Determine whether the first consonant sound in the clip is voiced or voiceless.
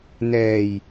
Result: voiced